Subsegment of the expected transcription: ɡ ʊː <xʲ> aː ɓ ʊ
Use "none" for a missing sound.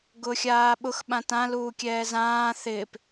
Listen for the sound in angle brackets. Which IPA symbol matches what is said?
xʲ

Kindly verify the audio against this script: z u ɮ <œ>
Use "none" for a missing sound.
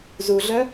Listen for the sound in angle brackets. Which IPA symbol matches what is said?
œ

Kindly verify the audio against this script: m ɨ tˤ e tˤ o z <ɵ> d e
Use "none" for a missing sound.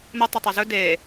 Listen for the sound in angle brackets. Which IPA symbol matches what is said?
ɵ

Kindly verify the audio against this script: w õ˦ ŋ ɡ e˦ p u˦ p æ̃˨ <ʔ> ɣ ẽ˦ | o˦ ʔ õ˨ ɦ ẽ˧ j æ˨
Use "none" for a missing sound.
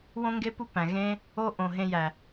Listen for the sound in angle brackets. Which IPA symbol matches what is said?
none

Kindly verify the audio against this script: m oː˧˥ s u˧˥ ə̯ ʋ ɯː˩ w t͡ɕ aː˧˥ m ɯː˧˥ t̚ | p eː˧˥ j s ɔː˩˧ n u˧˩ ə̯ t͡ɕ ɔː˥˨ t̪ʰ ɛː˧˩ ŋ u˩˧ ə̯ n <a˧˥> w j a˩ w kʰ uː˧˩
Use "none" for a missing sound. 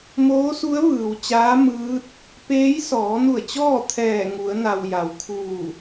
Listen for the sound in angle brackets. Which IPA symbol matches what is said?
a˩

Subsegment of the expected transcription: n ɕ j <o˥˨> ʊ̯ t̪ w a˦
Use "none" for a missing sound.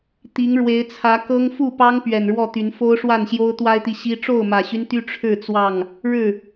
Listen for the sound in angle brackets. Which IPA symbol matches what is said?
o˦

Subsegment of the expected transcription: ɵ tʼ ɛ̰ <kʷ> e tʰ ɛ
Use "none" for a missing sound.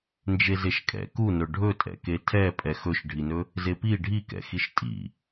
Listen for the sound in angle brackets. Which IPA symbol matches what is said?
k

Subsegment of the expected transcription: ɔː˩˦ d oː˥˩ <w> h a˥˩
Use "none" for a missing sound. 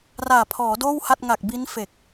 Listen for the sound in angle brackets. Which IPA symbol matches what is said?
w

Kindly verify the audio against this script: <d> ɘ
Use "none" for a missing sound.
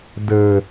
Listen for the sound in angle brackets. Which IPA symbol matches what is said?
d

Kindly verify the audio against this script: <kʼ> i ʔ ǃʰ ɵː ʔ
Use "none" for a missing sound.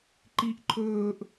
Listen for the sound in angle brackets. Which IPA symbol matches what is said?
ǃ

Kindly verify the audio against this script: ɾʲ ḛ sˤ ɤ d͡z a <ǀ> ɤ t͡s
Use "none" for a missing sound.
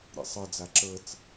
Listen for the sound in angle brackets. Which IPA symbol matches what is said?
ǁ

